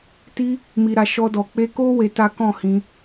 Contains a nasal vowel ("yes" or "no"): yes